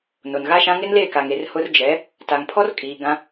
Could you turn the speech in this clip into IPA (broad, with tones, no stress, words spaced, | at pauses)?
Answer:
no˨nɣa˦ʃã˦ ŋɪ˦nle˦˨ka˨ŋe˨r hʊ˦r d͡ʒɛ˨˦ | ta˨ŋpʰɔ˦rkʼiː˨ ɡã˦